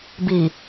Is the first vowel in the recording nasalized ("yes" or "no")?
no